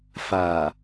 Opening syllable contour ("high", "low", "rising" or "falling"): low